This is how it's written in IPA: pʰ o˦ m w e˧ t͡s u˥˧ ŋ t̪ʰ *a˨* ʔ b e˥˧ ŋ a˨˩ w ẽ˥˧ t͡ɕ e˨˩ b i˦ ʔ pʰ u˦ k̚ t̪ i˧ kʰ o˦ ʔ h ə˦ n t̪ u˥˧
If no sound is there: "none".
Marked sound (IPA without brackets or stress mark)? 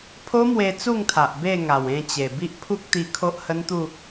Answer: a˨